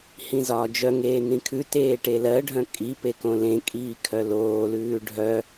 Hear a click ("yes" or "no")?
no